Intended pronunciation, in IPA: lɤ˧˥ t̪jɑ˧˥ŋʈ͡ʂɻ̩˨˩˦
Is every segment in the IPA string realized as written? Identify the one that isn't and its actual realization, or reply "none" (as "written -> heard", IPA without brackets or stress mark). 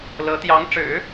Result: none